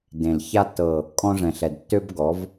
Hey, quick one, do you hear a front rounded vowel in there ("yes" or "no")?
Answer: yes